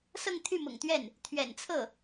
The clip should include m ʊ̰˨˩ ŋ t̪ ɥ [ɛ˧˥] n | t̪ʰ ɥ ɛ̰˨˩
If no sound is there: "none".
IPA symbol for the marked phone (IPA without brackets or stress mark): ɛ˥˩